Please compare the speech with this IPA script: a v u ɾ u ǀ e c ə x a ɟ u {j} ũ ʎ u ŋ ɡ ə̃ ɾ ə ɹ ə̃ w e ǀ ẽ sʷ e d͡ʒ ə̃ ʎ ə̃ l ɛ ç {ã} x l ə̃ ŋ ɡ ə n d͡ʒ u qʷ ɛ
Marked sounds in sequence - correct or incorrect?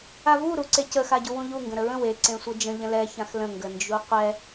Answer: incorrect: w, correct

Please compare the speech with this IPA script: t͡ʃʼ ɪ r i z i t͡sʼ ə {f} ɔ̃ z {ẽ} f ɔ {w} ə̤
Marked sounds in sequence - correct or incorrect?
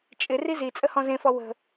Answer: incorrect: h, correct, correct

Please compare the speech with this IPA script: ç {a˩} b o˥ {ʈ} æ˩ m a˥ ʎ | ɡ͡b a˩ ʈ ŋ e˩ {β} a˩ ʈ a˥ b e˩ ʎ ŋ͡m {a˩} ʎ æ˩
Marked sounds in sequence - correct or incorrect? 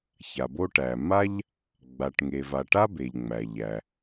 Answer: correct, correct, incorrect: v, incorrect: æ˩

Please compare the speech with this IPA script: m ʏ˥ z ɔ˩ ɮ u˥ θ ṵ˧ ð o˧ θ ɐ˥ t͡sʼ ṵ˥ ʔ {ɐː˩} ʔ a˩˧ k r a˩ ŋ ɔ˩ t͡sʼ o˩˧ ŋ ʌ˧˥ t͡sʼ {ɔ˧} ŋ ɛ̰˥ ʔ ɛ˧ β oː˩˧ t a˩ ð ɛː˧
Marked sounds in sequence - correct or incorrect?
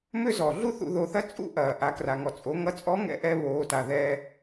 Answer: correct, incorrect: ɔ˧˥

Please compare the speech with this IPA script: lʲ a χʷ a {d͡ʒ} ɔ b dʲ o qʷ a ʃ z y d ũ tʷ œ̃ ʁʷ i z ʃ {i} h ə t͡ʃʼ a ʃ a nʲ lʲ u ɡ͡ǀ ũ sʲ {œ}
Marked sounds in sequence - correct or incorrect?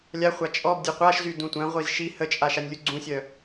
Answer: incorrect: t͡ʃʼ, correct, correct

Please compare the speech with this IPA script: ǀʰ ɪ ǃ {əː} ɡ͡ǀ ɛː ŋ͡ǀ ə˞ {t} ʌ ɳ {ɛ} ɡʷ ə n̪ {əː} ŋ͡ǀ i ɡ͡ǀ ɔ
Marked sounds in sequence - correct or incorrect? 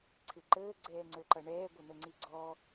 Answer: correct, incorrect: ǃ, incorrect: ɛː, incorrect: ə

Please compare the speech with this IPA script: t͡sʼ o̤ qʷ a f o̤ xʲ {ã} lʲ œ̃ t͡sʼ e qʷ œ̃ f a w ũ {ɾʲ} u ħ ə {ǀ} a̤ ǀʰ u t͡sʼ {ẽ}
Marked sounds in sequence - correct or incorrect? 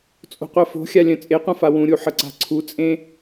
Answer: incorrect: a, correct, correct, correct

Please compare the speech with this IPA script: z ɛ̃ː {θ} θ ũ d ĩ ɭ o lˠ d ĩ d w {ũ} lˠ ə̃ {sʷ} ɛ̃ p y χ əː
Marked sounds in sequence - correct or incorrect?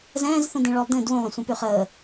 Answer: incorrect: z, correct, correct

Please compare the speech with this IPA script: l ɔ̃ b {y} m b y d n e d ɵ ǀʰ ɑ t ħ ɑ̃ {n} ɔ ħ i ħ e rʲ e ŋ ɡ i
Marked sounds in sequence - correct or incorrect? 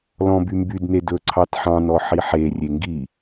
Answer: correct, correct

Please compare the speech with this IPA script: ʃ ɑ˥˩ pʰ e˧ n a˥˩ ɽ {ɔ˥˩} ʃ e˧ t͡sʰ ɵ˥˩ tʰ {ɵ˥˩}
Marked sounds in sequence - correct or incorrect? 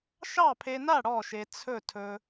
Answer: correct, incorrect: ɵ˧

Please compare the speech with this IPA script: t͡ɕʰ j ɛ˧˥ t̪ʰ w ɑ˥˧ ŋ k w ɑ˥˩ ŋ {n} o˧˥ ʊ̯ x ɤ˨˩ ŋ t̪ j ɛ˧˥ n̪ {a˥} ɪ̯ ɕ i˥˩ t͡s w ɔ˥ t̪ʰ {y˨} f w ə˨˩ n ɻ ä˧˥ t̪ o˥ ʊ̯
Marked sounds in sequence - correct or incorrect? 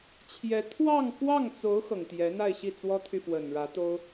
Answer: incorrect: t͡s, incorrect: a˥˧, correct

